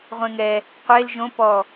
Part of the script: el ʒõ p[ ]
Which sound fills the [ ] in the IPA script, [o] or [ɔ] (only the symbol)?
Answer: ɔ